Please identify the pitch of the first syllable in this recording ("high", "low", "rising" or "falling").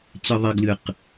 high